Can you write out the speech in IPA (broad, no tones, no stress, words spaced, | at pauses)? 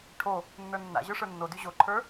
ʈʰo | nːə˞nːa̰ ʑə˞ʂə˞nːody ʑoǃʰə˞